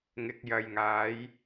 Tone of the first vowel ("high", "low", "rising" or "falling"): low